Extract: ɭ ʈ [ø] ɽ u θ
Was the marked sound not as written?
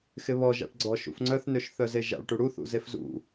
yes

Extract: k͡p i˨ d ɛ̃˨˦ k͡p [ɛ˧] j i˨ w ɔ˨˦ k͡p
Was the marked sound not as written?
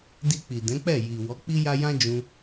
yes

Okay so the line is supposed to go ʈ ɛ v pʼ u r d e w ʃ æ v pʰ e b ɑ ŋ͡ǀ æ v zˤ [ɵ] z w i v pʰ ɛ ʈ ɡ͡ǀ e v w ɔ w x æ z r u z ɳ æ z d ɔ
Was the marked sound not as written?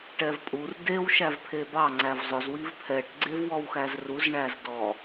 no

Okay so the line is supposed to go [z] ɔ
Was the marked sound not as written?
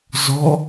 no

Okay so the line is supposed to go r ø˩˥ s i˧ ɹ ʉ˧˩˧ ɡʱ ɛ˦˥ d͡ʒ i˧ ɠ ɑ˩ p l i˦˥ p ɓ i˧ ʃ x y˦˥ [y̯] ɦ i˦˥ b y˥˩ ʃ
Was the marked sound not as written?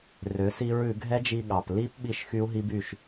yes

